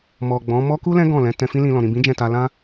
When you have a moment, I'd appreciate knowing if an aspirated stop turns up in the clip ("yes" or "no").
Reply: no